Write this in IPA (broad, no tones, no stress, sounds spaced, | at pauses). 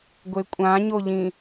ɡʷ e kʷʼ ã ɲ o ʎ ĩ